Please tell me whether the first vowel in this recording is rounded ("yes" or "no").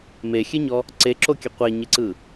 no